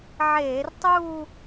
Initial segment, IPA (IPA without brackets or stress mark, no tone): ʕ